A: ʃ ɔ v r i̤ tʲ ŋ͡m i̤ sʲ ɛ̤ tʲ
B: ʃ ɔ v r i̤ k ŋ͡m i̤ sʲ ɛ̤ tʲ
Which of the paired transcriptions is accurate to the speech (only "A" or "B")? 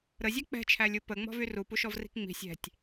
B